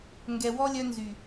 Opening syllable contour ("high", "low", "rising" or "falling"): low